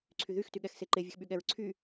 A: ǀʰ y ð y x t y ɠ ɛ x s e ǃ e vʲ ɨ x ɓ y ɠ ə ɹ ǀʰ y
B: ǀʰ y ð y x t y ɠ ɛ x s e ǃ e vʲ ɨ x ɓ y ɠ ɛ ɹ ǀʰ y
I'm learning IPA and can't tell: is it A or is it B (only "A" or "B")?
B